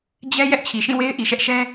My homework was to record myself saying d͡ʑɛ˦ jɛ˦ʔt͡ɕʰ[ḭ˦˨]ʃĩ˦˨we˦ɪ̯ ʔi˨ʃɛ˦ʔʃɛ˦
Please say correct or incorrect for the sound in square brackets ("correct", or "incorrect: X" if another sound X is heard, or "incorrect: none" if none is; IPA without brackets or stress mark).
incorrect: i˨